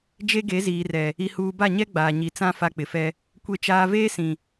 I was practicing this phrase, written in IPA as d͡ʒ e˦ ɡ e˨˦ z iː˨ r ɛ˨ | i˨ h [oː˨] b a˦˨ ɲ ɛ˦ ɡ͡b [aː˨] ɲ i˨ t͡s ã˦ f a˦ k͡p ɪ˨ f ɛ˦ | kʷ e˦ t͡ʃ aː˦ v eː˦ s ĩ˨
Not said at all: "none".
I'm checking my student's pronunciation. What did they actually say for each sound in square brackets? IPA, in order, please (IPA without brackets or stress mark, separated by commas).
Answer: uː˨, aː˨